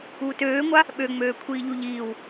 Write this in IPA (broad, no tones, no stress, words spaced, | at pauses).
uːtøːŋʷa | ɓøŋ͡møː kʷʰiːʎuʎiːw